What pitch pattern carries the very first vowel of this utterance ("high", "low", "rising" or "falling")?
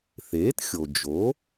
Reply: rising